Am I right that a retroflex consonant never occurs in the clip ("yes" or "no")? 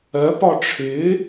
no